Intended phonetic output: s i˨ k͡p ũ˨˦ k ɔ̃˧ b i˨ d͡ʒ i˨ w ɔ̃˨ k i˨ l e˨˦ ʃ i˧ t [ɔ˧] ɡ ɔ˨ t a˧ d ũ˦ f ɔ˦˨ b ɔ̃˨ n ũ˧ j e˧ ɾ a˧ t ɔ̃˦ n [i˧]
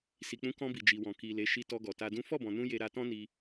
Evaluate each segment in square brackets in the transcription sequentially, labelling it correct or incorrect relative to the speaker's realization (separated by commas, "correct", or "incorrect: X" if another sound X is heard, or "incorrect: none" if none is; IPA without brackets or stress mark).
correct, correct